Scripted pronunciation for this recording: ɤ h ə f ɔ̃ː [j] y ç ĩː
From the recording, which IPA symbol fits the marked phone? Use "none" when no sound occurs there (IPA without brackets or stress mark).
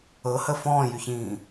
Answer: j